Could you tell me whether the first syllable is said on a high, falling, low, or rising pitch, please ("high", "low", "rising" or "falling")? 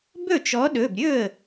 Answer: falling